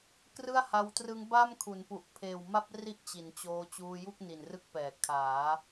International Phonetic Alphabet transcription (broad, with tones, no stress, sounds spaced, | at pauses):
k r ɯ˥˩ a̯ h a˧ w t r ɯ˦˥ ŋ b a˥˩ m kʰ u˩˦ n p u˨˩ ʔ pʰ eː˨˩ w m a˥˩ p̚ r i˥˩ ʔ t͡ɕ i˩˦ n t͡ɕ oː˧ t͡ɕ uː˧ j u˥˩ k̚ n i˨˩ n r ɯ˦˥ k̚ p ɛː˩˦ kʰ aː˩˦